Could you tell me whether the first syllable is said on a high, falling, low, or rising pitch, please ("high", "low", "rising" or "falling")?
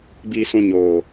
low